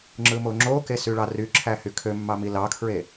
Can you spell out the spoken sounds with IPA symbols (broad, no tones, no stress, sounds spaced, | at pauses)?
ŋ͡ǁ ɯ m o ŋ͡ǁ o k e s y ɭ ɑ r y ǁʰ æ h y kʰ ø mː ɑ m i l ɑ kʰ ɹ e